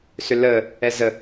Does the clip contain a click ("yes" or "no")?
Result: no